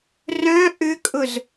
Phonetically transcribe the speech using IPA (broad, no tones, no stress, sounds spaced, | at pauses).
r œ̃ ʔ ʏ kʼ ʊ z